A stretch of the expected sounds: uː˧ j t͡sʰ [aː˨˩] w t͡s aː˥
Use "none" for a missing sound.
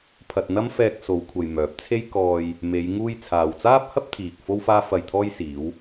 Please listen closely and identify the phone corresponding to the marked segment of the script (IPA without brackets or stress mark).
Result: aː˨